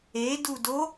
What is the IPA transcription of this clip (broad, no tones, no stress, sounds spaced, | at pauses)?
e d u d o